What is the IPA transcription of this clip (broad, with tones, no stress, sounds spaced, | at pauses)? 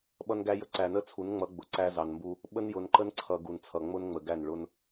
ɓ ʌ˦ n ɡ æ˦ j ə˦ ǀ æ˨ n ə˦ t͡sʰ u˨˦ n ŋ͡m ʌ˨˦ ɡ͡b ʊ˨ ǀ æ˦ z ɑ˨ n m b u˦ | ɓ ə˦ n j ʊ˨ n ǃ ə˦ n ǀʰ ʌ˨ ɡ u˨ n t͡sʰ ʌ˨ ŋ͡m ʊ˦ n ŋ͡m ə˨ ɡ æ˦˨ n ɭ ʊ˦ n